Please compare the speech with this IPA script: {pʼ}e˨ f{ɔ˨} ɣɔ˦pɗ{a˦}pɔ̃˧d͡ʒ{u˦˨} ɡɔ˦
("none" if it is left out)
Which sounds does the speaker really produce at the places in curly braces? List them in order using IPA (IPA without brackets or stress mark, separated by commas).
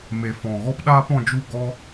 m, ɔ̃˨, aː˦, u˦˨